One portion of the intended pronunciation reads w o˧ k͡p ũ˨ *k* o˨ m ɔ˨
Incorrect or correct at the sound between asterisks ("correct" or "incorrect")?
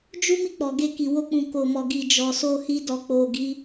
correct